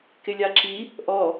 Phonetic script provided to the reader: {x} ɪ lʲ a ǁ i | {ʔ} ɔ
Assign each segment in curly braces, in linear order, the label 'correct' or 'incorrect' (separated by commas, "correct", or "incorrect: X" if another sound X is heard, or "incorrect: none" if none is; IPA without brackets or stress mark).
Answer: incorrect: k, correct